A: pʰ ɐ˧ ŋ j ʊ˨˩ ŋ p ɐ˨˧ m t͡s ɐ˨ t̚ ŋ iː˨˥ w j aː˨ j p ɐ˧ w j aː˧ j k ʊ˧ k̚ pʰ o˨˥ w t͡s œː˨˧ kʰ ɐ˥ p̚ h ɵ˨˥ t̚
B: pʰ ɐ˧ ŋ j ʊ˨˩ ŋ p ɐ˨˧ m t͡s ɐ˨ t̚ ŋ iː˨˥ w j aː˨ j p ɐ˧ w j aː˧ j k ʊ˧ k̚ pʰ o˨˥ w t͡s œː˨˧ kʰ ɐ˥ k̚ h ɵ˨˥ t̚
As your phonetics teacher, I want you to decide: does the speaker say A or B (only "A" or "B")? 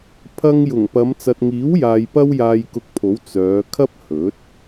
A